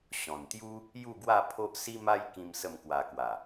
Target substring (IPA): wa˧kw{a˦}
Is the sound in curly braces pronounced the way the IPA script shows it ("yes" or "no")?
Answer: no